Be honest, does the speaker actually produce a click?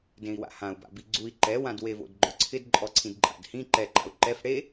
yes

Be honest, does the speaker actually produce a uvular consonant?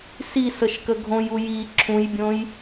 no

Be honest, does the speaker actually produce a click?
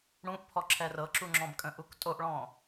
yes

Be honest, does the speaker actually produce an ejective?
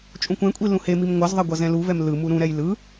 yes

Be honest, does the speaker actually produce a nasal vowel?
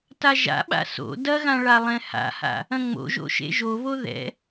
yes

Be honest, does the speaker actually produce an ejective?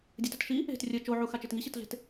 no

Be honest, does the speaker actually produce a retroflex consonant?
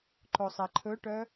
yes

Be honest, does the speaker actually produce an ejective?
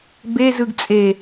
yes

